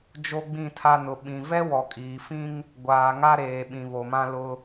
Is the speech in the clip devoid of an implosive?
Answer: no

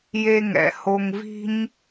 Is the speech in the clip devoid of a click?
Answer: yes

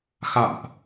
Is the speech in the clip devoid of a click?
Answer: yes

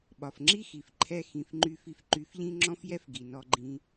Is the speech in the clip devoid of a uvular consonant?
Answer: yes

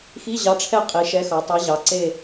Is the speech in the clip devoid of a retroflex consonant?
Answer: no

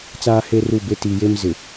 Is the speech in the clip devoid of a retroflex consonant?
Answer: yes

